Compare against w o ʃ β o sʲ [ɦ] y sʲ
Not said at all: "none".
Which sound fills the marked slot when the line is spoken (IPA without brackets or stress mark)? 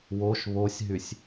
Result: ɦ